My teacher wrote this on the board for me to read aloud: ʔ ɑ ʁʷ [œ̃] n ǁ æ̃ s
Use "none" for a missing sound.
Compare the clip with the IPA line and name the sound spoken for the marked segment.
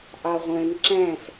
œ̃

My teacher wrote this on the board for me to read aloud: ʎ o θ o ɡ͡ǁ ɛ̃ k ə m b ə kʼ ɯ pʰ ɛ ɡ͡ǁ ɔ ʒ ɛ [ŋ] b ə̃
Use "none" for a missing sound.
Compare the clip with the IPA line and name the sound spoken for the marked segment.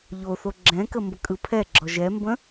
m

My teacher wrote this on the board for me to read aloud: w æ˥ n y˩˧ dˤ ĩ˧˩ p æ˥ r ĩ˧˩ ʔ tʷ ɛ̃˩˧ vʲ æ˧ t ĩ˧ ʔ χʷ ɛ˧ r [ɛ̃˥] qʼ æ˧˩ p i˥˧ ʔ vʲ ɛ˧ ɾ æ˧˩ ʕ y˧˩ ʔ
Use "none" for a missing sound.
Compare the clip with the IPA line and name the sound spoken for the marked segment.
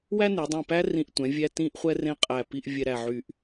ẽ˥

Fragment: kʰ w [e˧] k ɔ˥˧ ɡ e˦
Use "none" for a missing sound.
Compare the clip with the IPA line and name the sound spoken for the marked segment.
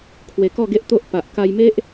e˧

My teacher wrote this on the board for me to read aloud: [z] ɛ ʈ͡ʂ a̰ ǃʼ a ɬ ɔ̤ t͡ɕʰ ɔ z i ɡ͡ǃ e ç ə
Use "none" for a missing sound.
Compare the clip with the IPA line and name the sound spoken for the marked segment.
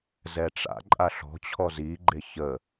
z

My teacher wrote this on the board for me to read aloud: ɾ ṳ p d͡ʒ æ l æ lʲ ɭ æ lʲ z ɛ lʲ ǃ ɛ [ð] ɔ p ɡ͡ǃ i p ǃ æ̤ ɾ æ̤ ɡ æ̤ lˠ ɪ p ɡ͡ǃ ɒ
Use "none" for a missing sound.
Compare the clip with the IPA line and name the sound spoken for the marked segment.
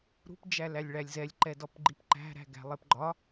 d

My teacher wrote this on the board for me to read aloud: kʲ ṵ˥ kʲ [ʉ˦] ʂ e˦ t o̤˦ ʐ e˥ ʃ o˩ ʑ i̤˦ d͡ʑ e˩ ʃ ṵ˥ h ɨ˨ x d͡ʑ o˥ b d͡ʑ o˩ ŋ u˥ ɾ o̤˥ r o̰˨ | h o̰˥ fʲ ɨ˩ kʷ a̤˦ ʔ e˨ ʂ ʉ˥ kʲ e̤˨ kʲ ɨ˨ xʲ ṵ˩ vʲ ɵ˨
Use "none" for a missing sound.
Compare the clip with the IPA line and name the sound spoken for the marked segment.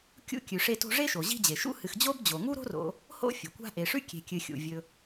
ʉ˨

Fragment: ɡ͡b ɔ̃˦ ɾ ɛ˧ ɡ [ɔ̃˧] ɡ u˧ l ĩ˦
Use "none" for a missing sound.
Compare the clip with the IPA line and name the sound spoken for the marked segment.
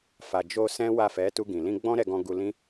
ɔ̃˧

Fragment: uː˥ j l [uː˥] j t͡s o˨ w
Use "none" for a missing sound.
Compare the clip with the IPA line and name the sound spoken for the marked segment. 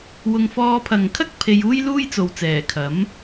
uː˥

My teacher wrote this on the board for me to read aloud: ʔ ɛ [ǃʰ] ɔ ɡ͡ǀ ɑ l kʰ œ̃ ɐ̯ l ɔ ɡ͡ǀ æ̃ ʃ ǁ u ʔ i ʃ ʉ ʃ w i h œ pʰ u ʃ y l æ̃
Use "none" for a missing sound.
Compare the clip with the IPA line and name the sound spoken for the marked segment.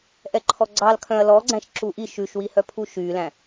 ǃʰ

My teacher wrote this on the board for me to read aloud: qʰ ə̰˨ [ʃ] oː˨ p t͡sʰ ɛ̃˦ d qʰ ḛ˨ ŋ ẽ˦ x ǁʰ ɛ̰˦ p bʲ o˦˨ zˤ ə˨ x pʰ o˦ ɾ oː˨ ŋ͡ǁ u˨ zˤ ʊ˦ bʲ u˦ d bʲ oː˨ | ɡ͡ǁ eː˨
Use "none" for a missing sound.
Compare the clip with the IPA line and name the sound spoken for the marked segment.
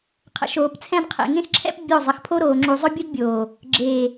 ʃ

